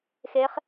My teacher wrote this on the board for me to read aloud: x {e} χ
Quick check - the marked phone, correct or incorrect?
correct